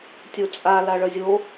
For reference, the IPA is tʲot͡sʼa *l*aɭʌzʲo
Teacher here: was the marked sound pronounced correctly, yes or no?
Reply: yes